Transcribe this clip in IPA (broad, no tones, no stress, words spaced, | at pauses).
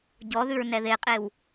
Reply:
ɟɔðʉɹ nɛðeqʼew